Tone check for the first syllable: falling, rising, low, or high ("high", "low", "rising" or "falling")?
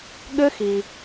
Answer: high